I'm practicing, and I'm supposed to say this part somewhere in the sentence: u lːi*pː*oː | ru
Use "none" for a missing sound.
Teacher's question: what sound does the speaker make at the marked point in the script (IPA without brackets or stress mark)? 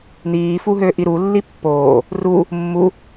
pː